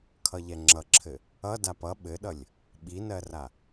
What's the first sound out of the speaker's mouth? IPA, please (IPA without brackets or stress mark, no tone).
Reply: kʰ